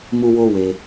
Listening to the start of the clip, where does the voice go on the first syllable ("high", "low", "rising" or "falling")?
high